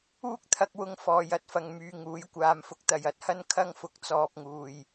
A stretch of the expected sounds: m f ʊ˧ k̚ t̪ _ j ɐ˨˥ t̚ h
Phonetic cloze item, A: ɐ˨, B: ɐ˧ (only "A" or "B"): A